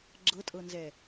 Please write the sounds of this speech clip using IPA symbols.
ɡ͡ǁ ɤ tʼ ɤ n z ɛ

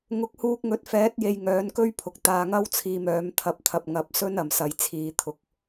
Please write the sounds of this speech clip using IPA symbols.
ŋ ʊ˨˥ k̚ h uː˧ k̚ ŋ ɵ˨˥ t̚ f ɛː˨˥ t̚ j e˧ j ŋ œː˨˥ n k ɵ˥ ɥ pʰ ʊ˨ k̚ t̪ aː˧ ŋ ɐ˥ w t͡sʰ iː˧ m œː˨˥ m t̪ʰ ɐ˧ p̚ t̪ʰ ɐ˨ p̚ ŋ ɐ˧ p̚ s ɵ˥ n ɐ˨ m s ɐ˨˧ j t͡sʰ iː˨˧ t̪ʰ ʊ˨˥ k̚

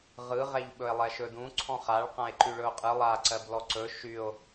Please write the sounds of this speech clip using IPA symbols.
ʁ ɯ ʁ ɛ ʎ ɓ ɵ e̯ lˠ ɛ ʃ ɵ d ũ ǀʰ ɔ̃ χ a ɭ q ã e̯ ǃ y ɭ ɵ o̯ qʼ ɯ lˠ a ǀ ɜ b l ɔ ǀ ɵ ʃ y o̯

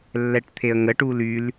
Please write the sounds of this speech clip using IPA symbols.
lː ɛ ʈ t̪ʰ e ə̯ ŋ ə ʈ uː l y l

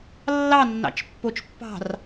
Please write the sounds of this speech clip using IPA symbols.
lː ɑ nː ɑ̰ t͡ʃ pː o t͡ʃ pː ɑ̤ r

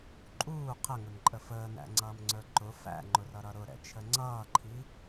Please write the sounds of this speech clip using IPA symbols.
ǃʼ uː qʰ ə ŋ ʊ n ǃʼ ə f əː n æ̰ ŋ͡ǀ ʌː m ŋ͡ǀ ə˞ ǃ ʊ f æ̰ ŋ͡ǃ ʊ r ʌ ɾ ʌ ɾ ʊ ɾ ɛ̰ t͡ʃʰ ə ŋ͡ǀ ʌː ǃʰ i

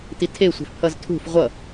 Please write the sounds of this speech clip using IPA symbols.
t i tʰ e sʷ ɛ̤ f pʰ ʌ z tʰ ṳ f ʁʷ ʌ

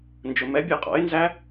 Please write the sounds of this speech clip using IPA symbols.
n d͡ʒ ʊ m ɛ bʲ ɑ qʼ ɔ̰ ɪ̯ n z æ

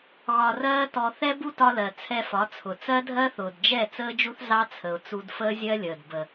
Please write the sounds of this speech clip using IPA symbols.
ɣ ɒ˧ r ɜː˦ t ɔ˧ θ ɛ˦ b u˦ t ɒ˧ l ɜ˨ t͡sʰ ɛ˧ f ɒ˨˦ t͡sʰ ʊ˨ t͡s ɜ˦ dʱ ɜ˦ θ ʊː˨ d d͡ʒ ɛ˦˨ t͡s əː˦ d͡ʒ u˦ θ z ɑ˦ t͡sʰ ə˨ ʊ̯ t͡s u˧ d f əː˦ zʲ ɜ˦ lʲ əː˨ d b ə˨

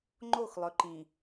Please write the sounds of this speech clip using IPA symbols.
ŋ͡ǃ o˦˨ x lˠ ɵ˨ ǃ ĩ˨

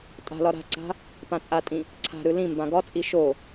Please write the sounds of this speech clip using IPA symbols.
tʼ a̤ l ɒ ɾ a̤ ǀ a̤ | p ã t͡sʼ a tʼ ĩ | ǀʰ a̤ ɾ ɯ l ĩ m b ã ɡ ɒ t͡sʼ i ʃ o

